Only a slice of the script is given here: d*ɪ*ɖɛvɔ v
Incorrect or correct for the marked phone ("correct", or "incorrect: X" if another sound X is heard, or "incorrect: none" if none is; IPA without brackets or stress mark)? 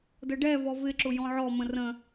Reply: incorrect: ə